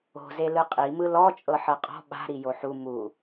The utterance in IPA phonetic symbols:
o̤ z e l ɯ qʼ i m ɯ l ɔ t͡ʃʼ ɤ ħ ɤ qʼ ɔ̤ ɓ a̤ ɾ i j o ħ u m u

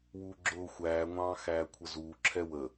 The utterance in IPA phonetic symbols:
w uː ɡ͡ǁ ʊː xʷ æː ŋʷ ɑ̃ː x æː kʷʰ ə z uː ǁʰ ɛ w ə

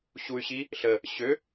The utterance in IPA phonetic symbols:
ɕ u y̯ ɕ i | ɬ ə | ɕ ø

